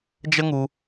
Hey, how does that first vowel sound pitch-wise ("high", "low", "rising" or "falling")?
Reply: high